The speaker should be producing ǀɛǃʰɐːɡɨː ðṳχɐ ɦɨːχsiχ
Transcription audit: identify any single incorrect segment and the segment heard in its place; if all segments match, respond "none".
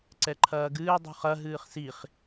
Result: ð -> dˤ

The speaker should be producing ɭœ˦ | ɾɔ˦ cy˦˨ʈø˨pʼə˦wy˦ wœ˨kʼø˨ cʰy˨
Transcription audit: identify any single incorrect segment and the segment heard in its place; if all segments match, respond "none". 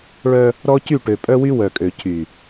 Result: ə˦ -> œ˦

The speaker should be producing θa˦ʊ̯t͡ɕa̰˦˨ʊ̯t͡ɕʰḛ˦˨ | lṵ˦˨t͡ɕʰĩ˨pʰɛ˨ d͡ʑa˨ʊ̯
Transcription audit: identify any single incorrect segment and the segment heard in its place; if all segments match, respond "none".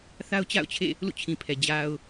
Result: none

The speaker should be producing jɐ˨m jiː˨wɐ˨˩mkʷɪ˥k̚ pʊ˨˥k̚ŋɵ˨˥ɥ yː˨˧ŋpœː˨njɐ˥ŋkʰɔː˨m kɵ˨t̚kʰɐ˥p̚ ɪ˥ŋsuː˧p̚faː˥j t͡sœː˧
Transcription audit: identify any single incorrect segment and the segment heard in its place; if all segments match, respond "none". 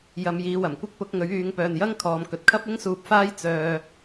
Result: none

